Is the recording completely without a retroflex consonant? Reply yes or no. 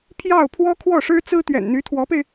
no